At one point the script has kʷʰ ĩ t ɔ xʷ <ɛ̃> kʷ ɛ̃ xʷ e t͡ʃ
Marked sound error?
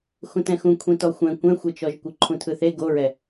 no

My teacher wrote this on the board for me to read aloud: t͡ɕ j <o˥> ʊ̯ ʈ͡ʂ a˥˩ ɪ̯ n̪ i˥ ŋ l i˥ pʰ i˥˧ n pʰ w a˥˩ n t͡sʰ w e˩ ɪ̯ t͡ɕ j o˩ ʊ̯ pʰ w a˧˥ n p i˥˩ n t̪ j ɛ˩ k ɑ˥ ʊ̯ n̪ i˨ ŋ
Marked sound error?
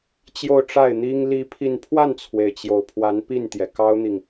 yes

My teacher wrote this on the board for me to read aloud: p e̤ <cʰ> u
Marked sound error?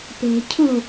no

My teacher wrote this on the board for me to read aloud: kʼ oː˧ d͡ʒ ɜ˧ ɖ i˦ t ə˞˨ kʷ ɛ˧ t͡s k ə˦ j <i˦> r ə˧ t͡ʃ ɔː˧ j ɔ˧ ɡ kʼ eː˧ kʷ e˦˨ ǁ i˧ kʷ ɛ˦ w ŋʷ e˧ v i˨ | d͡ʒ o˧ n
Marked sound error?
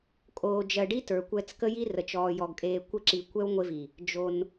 no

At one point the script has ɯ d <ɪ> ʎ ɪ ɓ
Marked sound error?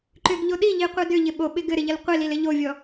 yes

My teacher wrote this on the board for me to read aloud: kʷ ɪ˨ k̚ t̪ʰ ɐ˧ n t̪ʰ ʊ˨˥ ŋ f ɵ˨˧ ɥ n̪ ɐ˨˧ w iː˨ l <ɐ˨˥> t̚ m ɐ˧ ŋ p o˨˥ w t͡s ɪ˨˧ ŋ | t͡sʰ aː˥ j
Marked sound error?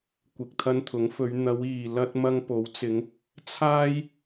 yes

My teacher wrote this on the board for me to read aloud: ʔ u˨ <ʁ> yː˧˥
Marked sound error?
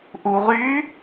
no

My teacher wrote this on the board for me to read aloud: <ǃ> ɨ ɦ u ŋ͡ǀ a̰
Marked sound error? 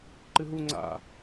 no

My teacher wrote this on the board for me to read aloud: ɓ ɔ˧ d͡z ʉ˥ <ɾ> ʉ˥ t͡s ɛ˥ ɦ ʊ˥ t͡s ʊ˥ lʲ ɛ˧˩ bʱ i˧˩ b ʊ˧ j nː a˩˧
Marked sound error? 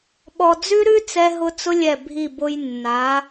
no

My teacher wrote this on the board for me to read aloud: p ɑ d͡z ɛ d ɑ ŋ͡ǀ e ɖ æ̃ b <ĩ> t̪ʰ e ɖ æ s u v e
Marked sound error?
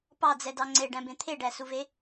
yes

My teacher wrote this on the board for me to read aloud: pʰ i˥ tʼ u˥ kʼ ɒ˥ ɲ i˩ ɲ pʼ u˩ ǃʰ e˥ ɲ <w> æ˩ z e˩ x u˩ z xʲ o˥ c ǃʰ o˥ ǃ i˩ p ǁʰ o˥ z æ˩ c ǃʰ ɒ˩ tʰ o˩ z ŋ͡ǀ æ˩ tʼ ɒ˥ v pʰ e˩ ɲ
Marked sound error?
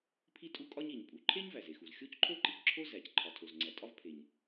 yes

